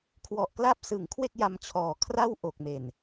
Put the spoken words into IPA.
kʰwɔ˨˩ʔkla˦˥p̚sɯ˩˦ŋ kʰwe˥˩k̚ja˧mt͡ɕʰɔː˨˩kʰra˥˩w ʔo˨˩k̚me˨˩n

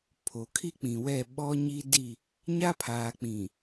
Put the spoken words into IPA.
pʰo˨kʰi˦k͡pĩ˨wɛ˦˨ ɓɔ˦ɲiː˦di˦˨ | ɲa˦pʰaː˨k͡pĩ˨

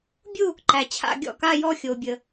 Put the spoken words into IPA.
bʲu˥˧ | ǃæ˨t͡ɕʰa̰˥˧ ɡʲɔ̰˥˩ka˥˧jɔ˥˧ xʲo˨bʲə˨

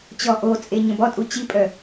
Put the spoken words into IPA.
t͡ɕɔʔot͡sʼe ɲə̃bɔtʼu t͡ɕipʼœ

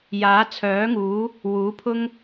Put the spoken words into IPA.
jaː˨˥t͡sʰœː˨˥ŋuː˨˥ | wuː˨˥pʰʊ˥ŋ

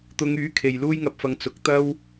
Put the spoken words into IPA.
t̪ʊ˨˧ŋ yː˨˥ kʰe˨jluː˥jŋɐ˧p̚fɐ˧ŋ t͡sʊ˨˥k̚ t̪ɐ˥w

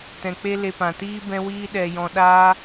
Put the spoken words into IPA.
tɛ̃˨k͡pe˦le˧pã˨ tiː˦bɛ̃˦wiː˦ ɗɛ˧jɔ̃˧ ɗaː˦

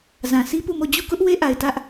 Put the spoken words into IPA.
zã˨si˦pu˦˨mo˦˨ d͡ʑu˦˨kʊ˦ʔ we˦ʔa˨ɪ̯ tä˦ʔ

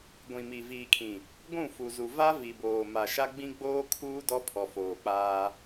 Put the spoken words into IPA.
ɡʷĩ˨mi˨ viː˨kʰĩ˨ | ɡʷũ˦˨fu˨zu˨ va˦vi˨boː˨ ma˨ʃa˦ ɡ͡bĩ˦ ɡ͡boː˦kʰuː˦ dɔ˦pʰɔ˨foː˨k͡paː˦

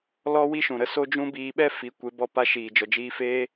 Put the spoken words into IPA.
lɔ˦wi˦ʃũ˨ɾə˧ so˦d͡ʒũ˦ biː˧ɓɛ˦ fi˨˦ kʷe˨˦ bɔ˧pa˧ ʃiː˨ d͡ʒɔ˨d͡ʒiː˧feː˦

